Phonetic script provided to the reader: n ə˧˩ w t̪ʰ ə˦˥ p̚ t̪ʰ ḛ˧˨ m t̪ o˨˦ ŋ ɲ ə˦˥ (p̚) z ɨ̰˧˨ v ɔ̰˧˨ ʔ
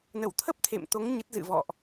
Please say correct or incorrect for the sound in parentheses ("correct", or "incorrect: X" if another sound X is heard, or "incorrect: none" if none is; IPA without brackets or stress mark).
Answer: incorrect: t̚